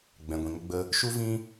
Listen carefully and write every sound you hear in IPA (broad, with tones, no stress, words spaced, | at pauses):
ɡ͡bɛ̃˨ɡʷĩ˨ŋə˧ɡ͡bə˧ | ʃu˦vĩ˦